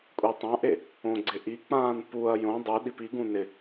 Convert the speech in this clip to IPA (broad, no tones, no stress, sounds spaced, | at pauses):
kʷʼ i tˤ ã ʔ e | õ ɡ͡ǀ ɪ ʔ i k͡p ãː n p u ɐ̯ j õ dˤ u ɗ i p i ɡ ũ n ɪ